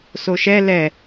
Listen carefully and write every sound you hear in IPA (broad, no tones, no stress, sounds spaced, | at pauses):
s o ʃ ɛ l ɛ